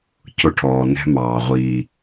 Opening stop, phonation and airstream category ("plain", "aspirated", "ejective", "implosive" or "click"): aspirated